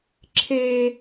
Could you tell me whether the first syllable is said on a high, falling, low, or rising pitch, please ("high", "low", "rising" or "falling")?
high